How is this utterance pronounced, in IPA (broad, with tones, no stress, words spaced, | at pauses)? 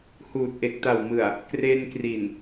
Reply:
huː˨˩t̚ʔe˨˩k̚ta˨˩wmɯ˨˩a̯ | kre˧nkri˨˩n